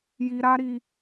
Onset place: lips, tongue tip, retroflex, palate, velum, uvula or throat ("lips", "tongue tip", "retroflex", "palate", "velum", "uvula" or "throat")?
palate